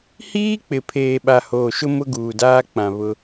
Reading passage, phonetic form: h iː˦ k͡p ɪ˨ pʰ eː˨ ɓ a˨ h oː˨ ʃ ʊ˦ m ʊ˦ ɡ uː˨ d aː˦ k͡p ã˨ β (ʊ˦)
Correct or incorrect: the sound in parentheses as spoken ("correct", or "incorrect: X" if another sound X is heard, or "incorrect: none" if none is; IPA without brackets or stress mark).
correct